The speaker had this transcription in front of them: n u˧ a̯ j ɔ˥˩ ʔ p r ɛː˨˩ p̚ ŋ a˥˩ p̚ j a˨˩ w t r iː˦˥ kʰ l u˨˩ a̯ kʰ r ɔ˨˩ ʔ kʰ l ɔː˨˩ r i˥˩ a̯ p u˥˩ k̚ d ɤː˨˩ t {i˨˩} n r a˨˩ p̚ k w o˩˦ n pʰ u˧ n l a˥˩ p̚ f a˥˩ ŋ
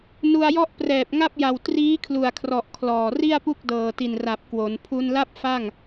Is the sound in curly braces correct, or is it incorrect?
correct